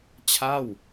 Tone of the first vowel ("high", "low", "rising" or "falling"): falling